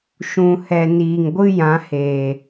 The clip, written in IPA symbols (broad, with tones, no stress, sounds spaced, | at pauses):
ʃ ũ˨ h ɛ˨ n iː˨ ŋ ɡʷ ɨ˦ j ã˨˦ h eː˨